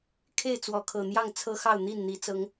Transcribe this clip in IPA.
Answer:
kʰ e˥˨ ɪ̯ t͡s w ɔ˨˦ kʰ ɤ˨˩ n̪ j ɑ˥˨ ŋ t͡sʰ ɤ˦ x ɑ˥˨ ʊ̯ n̪ i˥˨ n n̪ i˨˦ t͡s ɤ˨˦ ŋ

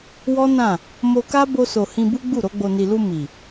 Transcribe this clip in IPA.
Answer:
w ɔ˦ n ã˦˨ | m o˧ k a˦ b o˧ s o˨ h ĩ˧ b u˦ ɡ͡b u˦˨ ɾ o˧ ɡ͡b o˨ n i˨ l u˧ m i˨

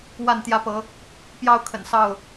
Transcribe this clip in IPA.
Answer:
w a˥˨ n t̪ j ä˦ p ɤ˨˦ | p j ɑ˦ ʊ̯ kʰ ə̰˨˩ n s ɑ˥˨ ʊ̯

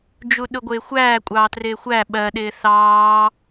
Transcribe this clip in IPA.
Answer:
d͡ʒ u ɗ ʊ ɡʷ ɪː xʷ æː kʷʼ ɑː t r ɪː xʷ æ ɓ ɜ ɗ ɪː θ ɑː

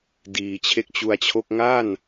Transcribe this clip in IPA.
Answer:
d iː˨˩ t͡ɕʰ e˦˥ k̚ t͡ɕ u˧ a̯ t͡ɕʰ o˥˩ k̚ ŋ a˥˩ n

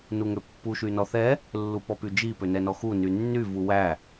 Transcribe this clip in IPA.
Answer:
n u ŋ ø pː u ʃ y n ɔ θ ɛ | lː u p ɔ p y d͡ʒ i p ø n ɛ n ɔ x u n y nː y v u w æ

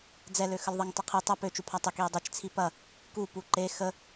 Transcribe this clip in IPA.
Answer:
d͡z ɛ l ø x ə l ðˤ e ŋ tˤ ə qʰ i tˤ ɐ p ø t͡ʃ u pʰ a tˤ ə k i ɐ̯ dˤ e t͡ʃ t͡sʰ i p ɐ | k u p u ǃ e x ə

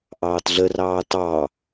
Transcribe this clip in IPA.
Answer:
ʔ ɑː t ɮ ə r ɑː t ɑ

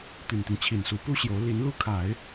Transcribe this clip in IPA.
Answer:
t̪ y˨˩ n t̪ i˦ ŋ t͡ɕʰ i˨˩ n s u˧˥ p u˥ ɕ j o˧˥ ʊ̯ l i˧˥ n l u˥ kʰ a˨˩˦ ɪ̯

